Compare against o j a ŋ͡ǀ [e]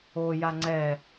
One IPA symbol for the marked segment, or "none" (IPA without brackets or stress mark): ɛ